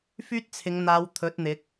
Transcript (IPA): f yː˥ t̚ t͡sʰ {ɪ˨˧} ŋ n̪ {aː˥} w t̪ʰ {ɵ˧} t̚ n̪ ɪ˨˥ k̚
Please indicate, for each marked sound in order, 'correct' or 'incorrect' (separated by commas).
correct, incorrect, incorrect